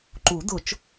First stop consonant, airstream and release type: click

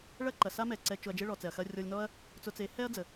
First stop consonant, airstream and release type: click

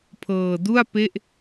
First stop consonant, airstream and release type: aspirated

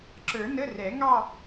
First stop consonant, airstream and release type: click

